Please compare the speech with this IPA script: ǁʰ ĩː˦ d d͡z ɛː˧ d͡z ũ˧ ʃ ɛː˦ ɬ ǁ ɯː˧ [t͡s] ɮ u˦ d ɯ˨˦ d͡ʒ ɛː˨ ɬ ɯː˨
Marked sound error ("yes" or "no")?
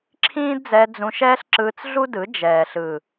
no